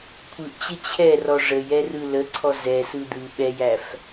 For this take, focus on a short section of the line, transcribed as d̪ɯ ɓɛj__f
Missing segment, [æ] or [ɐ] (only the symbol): æ